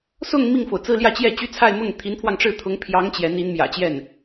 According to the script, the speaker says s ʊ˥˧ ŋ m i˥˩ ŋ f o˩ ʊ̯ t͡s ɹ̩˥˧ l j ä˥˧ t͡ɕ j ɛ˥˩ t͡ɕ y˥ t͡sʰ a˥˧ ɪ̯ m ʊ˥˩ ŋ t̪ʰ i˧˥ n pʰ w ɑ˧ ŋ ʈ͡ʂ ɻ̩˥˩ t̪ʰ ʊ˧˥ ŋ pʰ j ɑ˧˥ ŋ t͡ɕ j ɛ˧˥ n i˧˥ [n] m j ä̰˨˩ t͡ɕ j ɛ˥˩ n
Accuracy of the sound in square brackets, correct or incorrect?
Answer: correct